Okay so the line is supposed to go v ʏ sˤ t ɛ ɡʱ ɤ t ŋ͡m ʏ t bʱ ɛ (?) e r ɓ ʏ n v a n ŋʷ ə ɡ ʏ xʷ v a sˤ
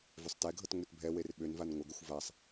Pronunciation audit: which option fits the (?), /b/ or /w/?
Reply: w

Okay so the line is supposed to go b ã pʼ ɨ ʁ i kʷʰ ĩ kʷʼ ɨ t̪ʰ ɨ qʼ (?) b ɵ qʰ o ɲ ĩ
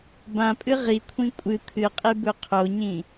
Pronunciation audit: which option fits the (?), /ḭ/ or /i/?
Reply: i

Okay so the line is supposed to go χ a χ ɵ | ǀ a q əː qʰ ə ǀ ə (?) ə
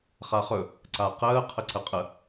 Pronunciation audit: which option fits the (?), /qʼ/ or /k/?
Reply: qʼ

